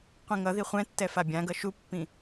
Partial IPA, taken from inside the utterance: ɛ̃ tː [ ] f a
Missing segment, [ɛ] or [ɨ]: ɛ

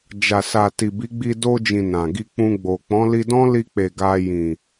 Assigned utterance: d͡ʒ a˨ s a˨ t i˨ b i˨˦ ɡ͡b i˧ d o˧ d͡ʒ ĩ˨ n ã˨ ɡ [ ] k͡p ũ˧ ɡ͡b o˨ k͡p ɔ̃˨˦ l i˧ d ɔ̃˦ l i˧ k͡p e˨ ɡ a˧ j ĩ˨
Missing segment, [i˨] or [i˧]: i˧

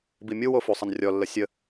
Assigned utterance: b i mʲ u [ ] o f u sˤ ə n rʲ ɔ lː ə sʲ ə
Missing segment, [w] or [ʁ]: w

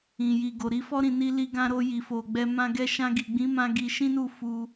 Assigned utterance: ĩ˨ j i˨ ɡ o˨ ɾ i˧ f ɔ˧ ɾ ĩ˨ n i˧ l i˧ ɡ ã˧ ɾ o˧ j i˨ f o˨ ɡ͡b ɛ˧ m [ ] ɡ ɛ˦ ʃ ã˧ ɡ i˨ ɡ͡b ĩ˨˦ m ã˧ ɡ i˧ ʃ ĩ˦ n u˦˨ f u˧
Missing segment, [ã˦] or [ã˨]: ã˦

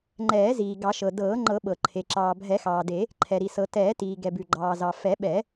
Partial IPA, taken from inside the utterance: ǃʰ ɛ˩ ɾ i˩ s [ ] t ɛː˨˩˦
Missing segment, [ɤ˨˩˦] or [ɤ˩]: ɤ˨˩˦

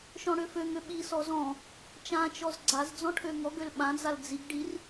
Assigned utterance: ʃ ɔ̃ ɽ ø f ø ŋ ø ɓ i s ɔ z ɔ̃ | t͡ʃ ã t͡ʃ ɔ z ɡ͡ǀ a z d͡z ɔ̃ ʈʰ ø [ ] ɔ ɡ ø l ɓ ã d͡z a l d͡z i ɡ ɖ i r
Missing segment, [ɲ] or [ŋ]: ŋ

